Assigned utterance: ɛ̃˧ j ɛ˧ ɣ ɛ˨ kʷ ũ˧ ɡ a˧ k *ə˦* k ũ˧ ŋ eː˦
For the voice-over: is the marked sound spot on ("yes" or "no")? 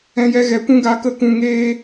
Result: yes